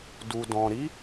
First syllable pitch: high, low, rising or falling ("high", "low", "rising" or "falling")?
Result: low